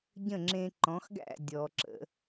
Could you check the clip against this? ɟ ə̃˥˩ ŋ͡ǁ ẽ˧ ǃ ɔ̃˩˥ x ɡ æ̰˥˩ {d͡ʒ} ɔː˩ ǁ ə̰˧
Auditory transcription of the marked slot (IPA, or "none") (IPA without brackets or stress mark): dʲ